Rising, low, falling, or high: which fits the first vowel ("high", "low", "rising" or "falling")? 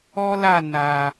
high